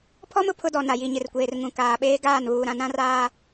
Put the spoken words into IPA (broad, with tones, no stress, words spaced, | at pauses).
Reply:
pʰɔ˦m ʊ˨pʰʊ˦dɔ˨ na˨ ji˨ɲɪ˨rkʷeː˨r ŋũ˨kaː˨ɓeː˦ ɡaː˦˨n βuː˨ɾã˨ nã˦raː˦